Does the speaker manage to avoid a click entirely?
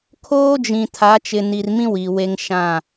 yes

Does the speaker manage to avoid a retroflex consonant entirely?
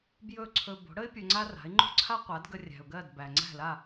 no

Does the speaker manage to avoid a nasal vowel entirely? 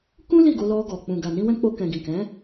no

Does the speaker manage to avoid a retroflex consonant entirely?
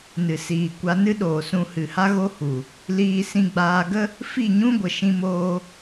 yes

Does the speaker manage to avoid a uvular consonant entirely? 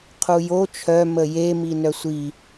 no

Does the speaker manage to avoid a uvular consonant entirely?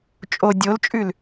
yes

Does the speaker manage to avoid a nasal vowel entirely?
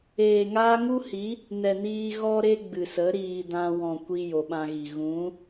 no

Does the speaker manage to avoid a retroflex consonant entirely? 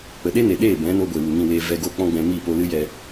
yes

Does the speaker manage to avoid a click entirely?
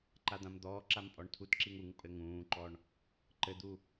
no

